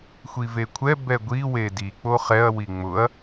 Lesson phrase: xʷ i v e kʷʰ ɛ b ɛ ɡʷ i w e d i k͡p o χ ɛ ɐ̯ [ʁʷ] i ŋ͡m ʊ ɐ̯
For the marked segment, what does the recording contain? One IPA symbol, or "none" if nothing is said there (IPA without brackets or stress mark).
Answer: w